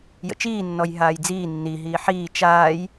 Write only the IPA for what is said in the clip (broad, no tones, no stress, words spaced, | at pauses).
jə̰t͡ʃiː nːɔjɦaːjd͡ziː nːi ɦiːħiː t͡ʃaːj